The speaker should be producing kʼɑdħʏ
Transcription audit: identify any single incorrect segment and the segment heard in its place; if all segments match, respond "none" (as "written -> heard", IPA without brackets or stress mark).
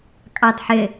ʏ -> ɪ